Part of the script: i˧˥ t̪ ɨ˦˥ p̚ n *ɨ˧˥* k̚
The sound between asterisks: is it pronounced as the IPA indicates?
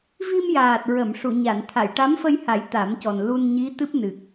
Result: no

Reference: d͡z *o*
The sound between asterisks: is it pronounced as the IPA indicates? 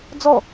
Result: no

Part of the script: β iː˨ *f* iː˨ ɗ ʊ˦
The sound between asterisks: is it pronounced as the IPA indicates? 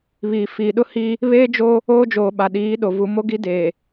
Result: yes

